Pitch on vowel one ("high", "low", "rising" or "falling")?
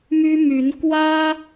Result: high